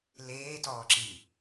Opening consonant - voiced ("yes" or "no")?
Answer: yes